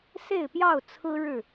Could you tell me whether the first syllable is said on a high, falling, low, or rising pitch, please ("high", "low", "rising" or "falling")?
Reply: falling